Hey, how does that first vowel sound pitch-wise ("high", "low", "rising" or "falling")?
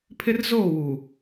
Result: high